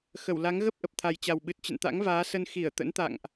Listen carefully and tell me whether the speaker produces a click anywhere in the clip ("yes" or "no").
no